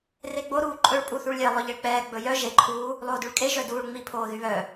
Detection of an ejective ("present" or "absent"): present